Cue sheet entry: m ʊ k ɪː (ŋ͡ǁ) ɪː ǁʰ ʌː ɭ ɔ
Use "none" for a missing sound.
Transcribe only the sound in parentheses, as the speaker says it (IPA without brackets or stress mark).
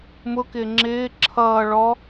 ŋ͡ǁ